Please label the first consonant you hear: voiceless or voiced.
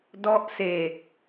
voiced